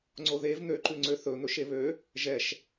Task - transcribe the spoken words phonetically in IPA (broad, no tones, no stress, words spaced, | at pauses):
ŋ͡ǀoðev n̪øǃʉŋ͡ǀø θɵ n̪ɵʃeβø | ʒɛʃ